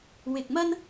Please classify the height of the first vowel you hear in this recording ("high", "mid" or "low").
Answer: high